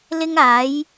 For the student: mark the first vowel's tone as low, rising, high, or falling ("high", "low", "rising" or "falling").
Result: high